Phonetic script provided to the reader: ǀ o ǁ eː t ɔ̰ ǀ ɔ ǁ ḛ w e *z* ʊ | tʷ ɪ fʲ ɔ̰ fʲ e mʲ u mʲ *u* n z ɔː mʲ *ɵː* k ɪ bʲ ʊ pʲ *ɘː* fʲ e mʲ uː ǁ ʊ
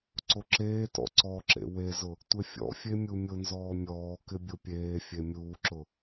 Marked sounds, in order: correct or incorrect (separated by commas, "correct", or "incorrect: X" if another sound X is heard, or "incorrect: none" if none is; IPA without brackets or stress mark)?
correct, incorrect: ʊ, incorrect: ɔː, incorrect: eː